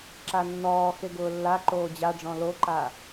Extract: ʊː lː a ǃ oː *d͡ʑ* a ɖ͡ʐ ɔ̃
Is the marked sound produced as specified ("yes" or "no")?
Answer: yes